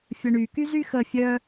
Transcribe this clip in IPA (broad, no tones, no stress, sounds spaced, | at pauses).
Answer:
fʲ ə ɳ y k y z y x ə fʲ œ